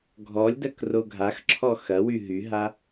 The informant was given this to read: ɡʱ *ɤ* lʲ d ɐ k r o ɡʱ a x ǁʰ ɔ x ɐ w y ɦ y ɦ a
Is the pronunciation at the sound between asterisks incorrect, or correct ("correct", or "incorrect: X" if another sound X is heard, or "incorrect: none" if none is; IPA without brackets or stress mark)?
incorrect: ɔ